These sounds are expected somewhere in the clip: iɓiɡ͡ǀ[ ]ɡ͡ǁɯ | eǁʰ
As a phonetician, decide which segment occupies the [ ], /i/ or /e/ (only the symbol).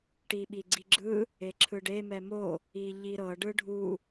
i